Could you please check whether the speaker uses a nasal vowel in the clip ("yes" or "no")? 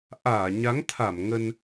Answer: no